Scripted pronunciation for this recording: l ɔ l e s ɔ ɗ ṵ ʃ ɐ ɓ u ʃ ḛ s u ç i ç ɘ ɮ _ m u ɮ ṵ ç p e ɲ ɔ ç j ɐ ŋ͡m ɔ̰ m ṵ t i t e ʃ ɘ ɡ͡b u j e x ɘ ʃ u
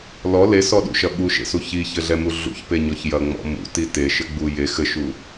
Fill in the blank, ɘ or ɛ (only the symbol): ɛ